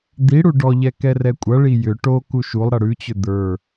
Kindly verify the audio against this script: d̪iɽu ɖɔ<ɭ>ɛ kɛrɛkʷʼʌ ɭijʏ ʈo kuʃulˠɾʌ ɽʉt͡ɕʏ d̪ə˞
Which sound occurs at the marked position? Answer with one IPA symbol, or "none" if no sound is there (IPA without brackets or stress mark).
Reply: ʎ